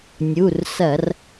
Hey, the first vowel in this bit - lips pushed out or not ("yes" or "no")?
yes